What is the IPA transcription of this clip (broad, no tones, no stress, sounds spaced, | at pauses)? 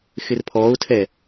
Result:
x ɪ r pʰ ɔː ʊ̯ tʰ ɛ